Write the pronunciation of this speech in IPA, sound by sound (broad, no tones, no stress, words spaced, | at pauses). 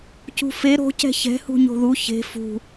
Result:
cṳfe ɾo̤ cɛ̤çɛ̤ hṳɲo̤ðu çe̤ fṳ